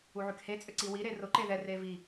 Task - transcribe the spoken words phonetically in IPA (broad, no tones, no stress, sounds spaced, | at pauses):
u ʕ y k h e t͡sʼ ʏ ǀ i w i ɾ e r ʊ ǃ e ð ɛ r e v i